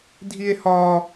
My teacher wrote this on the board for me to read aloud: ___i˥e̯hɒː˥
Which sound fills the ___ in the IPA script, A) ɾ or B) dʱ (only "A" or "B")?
B